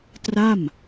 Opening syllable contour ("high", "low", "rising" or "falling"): falling